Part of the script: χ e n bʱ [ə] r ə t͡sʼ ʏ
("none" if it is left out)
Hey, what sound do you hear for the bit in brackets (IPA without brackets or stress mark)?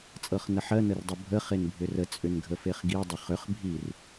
ʏ